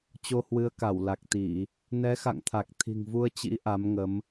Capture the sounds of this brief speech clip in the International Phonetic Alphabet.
t͡ɕ o˧ h w ɨ˨˦ ə̯ k a˧˩ w l a˨˩ k̚ t̪ i˧˩˨ | n ɛ˨˦ x a̰˧˨ ŋ t̪ʰ a˨˩ k̚ t̪ʰ i̤˨˩ ŋ v u˧ ə̯ t͡ɕ ḭ˧˥ ʔ a˨˦ m ŋ ə˨˦ m

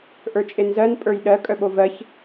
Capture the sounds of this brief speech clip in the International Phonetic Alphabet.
ʔ ə˞ t͡ʃʼ e n z ɜ n pʼ ə˞ j ɗ ɜ kʼ œ ɓ o v ɜ ç

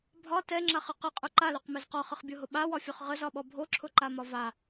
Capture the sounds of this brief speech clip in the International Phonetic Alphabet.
bʱ ɒ t ɛ ŋ͡ǁ a χ ə q ə qʼ ʊ ǃ a l o q m ɛ z q ɒ χ ə χ bʲ o ɦ ʊ ɓ a w ɒ fʲ ɔ χ ʁ ə z ɒ ɓ ɔ bʱ o ǁʰ ʊ ǃ a m ɒ v a

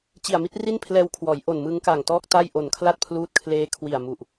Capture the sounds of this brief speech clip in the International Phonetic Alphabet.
t͡ɕ i˨˩ a̯ m i˥˩ t̚ r i˥˩ n pʰ l ɛː˧ w kʰ w ɔː˩˦ j ʔ o˨˩ n m ɯ˦˥ ŋ k a˨˩ ŋ t ɔː˥˩ k̚ t a˥˩ j ʔ o˨˩ n kʰ l a˥˩ t̚ pʰ l uː˦˥ t̚ kʰ l eː˦˥ kʰ w i˨˩ a̯ m u˨˩ ʔ

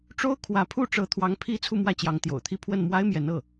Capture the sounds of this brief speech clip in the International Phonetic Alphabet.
ʈ͡ʂ o˥ ʊ̯ kʰ w ä˧˥ pʰ u˥˩ ʈ͡ʂ ɤ˧˥ t̪ʰ w ɑ˧˥ ŋ pʰ i˥ t͡sʰ u˥˧ m w ä˥˩ t͡ɕ j ɑ˧˥ ŋ t̪ j o̰˨˩ ʊ̯ t̪ʰ i˥˧ pʰ w ə˥˩ n m w a˥ ɪ̯ m j ɛ˧˥ n ɤ˥˩

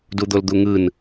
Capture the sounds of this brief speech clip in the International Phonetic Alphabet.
d u d̪ o l d̪ u ŋ ɯ n

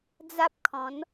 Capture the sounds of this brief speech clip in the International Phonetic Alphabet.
d͡z a˦ p̚ kʰ ɔ̃˨˦ n

